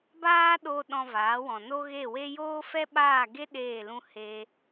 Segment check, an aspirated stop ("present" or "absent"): absent